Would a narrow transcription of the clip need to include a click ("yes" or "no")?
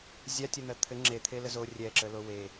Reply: yes